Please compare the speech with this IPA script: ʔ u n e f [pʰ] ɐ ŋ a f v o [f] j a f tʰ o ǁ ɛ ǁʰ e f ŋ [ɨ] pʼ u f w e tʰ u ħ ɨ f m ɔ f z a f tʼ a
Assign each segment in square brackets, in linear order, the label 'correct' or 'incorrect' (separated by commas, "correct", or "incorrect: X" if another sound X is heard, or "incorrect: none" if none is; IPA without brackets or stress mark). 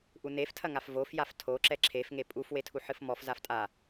incorrect: tʰ, correct, incorrect: e